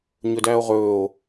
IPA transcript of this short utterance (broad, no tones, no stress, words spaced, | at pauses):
ɲɵdæːo̯ʁɵːo̯